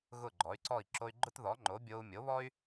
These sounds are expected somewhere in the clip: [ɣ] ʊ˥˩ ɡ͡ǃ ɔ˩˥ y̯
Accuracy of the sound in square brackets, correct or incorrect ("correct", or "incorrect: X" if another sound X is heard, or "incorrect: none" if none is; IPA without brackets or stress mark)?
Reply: correct